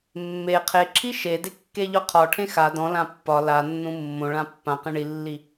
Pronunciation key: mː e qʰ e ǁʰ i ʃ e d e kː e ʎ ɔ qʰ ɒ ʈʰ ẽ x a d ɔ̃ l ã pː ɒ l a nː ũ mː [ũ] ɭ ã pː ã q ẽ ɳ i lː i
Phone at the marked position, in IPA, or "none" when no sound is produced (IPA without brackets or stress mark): õ